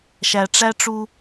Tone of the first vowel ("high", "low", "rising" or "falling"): low